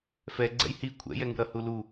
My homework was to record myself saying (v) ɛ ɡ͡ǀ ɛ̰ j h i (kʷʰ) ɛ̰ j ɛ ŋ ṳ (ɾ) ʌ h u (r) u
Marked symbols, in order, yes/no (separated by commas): no, yes, yes, no